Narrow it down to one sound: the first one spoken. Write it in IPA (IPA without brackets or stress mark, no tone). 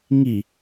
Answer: ŋ